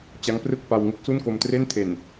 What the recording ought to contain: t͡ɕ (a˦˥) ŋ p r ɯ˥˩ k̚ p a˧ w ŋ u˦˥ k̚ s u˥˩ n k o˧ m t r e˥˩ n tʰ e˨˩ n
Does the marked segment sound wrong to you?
no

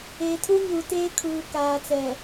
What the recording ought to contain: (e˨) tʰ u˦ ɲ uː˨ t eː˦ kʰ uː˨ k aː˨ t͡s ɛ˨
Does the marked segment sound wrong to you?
yes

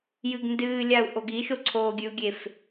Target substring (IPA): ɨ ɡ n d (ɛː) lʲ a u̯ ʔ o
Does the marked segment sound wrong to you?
yes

